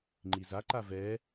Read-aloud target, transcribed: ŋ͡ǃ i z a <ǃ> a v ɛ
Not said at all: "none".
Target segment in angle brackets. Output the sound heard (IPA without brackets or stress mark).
ǃ